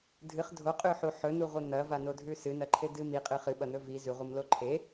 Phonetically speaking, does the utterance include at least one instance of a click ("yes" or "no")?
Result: yes